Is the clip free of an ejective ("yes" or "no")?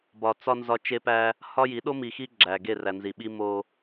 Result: yes